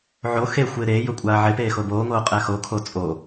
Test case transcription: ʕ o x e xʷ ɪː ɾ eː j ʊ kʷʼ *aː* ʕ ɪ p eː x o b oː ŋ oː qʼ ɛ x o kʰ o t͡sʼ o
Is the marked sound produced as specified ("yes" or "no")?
yes